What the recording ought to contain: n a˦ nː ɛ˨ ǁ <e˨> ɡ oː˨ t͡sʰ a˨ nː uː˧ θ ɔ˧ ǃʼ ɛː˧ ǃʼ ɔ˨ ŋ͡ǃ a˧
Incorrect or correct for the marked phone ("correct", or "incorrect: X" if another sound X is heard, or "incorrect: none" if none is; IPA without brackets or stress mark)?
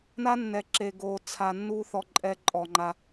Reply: correct